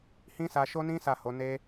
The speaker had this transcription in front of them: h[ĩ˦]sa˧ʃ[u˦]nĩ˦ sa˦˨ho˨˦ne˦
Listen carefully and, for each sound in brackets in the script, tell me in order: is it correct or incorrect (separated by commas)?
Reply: correct, incorrect